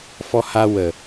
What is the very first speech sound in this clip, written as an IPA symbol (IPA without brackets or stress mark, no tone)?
f